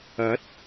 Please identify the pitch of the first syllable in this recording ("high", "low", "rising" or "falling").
rising